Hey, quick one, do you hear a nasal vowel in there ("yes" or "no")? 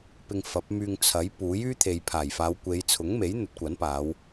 no